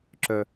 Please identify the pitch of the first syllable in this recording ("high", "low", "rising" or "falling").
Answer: low